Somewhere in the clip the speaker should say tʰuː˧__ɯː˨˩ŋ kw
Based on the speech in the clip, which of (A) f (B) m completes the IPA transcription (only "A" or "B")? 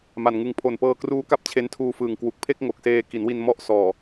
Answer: A